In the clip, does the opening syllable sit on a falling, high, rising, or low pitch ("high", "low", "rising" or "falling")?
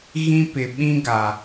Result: high